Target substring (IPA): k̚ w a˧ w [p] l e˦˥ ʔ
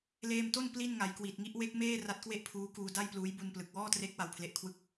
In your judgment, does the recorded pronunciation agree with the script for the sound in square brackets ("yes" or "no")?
no